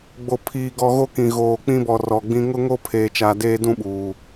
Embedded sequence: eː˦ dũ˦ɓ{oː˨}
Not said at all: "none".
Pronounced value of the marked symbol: uː˨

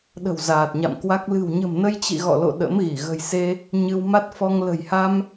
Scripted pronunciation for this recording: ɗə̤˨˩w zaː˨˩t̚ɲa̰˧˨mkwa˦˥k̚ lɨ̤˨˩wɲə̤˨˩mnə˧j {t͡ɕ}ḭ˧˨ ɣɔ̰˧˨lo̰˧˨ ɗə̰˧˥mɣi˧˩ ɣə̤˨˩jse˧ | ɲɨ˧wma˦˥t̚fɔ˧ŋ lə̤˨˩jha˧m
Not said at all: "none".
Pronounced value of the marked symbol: t͡ɕ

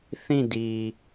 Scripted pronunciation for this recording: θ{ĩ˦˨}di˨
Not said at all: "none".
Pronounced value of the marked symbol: ĩ˦˨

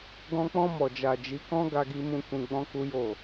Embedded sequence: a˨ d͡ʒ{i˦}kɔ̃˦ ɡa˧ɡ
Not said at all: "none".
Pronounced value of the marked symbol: i˨˦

